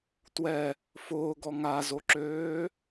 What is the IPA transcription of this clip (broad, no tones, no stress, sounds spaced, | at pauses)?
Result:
t w ɛ | f ʊː ɡ ɔ ŋ a z o ǁ øː